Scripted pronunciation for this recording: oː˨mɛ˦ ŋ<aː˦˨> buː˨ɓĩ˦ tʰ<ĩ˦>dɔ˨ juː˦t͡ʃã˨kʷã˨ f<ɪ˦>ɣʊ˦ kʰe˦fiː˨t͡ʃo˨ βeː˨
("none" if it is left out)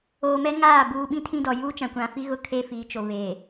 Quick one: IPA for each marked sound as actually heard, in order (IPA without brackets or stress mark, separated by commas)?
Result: aː˦˨, ĩ˦, i˦